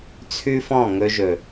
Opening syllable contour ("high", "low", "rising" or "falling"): high